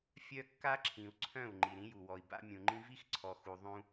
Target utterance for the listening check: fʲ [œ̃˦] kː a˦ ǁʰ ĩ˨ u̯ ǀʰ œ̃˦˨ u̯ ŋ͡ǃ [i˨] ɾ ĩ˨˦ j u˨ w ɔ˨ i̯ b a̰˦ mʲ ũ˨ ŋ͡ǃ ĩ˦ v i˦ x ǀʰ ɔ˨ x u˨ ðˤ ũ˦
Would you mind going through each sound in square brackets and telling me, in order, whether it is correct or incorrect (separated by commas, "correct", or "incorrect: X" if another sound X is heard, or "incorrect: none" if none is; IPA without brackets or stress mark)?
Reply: incorrect: œ˦, correct